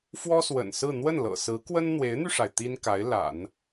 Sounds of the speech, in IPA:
f w ɔ˥ s w ə̰˨˩ n s ɹ̩˥˧ n̪ w ə˥˩ n l ɤ̰˨˩ s ɹ̩˧˥ k w ə˥ n n̪ w e˧˥ ɪ̯ n̪ y˧ ʂ a˩ ɪ̯ t̪ i˥ n k a˧˥ ɪ̯ l a̰˨˩˦ n

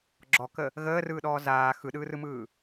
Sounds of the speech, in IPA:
ɡ͡ǁ ɔ k ə | ɣ əː r ɯː ɗ ɔː z aː x ɯ ɗ ɯː r ɯ m ɯː

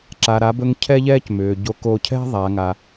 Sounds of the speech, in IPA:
ǁ a˩ ɾ a˩˧ b ɵ˧ ŋ cʰ ɛ˥ ʎ ɛː˥ c m ʏː˩ ɟ o˧˥ k o˧ cʰ ɛ̤˥ ðˤ a˩˧ ŋ a˩

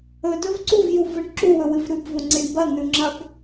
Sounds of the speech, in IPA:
ɵ d ɵ v ǀ u v j u v ɨ ɳ ǁ u w ɵ w ɨ v ɾ ʉ b v o ŋ͡ǀ i ɳ b ɐ n̪ ʉ ŋ͡ǁ ɐ b

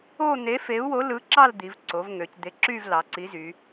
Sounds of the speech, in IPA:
o˥˧ n̪ e˨˥ f e˨˥ u̯ w o˨˥ l ɯ˨˥ ǁ ɑ˥˧ l d̪ i˩˧ v ǀ o˩˧ v ŋ ø˩˧ c d̪ e˨˥ ǁ y˥˧ v l ɑ˩˧ ǀ i˨˥ z y˩˧

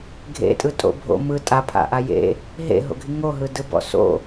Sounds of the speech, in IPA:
ɡʱ ḛ tʼ ɯ tʼ o̰ bʱ o̰ m ɯ tʼ a pʰ a̰ ʔ a j ḛ | ɦ ḛ ɦ o̰ ɡʱ i ŋ o ɦ ɯ d ɯ b ɔ̰ s o̰

